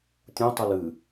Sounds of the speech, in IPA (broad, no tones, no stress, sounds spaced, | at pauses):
tʲ ũ tˤ ʉ l ɨ